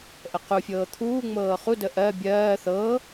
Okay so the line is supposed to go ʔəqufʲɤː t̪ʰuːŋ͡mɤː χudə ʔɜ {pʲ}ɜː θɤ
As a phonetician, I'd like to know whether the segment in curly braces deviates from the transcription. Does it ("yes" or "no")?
yes